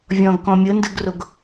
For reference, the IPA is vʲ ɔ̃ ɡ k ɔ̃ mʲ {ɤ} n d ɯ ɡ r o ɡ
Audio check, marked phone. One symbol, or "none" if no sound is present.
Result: ɤ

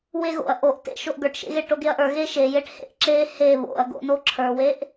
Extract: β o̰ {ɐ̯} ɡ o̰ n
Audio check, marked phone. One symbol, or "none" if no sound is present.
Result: ɐ̯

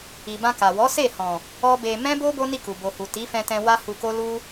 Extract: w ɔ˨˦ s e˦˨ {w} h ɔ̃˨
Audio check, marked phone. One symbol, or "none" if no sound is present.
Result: none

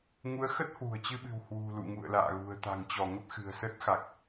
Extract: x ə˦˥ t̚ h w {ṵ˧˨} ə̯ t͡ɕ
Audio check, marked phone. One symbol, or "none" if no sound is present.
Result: ṳ˨˩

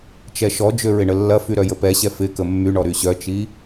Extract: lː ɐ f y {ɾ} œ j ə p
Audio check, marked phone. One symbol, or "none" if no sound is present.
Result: ɾ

